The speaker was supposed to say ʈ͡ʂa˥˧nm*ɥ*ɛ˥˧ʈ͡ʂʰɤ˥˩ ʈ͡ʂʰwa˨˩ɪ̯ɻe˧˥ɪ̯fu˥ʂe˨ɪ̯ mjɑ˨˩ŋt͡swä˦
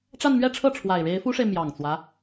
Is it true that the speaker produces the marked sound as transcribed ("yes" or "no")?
yes